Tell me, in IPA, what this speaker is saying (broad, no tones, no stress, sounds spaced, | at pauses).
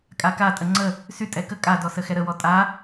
kʼ a k a tʼ ə ŋ͡ǀ ə | s y tʼ ɛ k ə kʼ a d ɔ s ə x ɛ ɾ ə w ɔ tʼ a